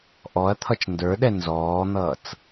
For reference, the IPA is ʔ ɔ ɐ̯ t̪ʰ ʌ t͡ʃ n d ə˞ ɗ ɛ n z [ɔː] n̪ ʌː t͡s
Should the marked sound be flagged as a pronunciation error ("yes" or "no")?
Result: no